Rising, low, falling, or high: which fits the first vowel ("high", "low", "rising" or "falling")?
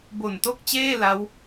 low